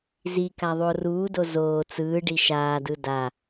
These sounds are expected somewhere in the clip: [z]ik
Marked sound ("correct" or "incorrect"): correct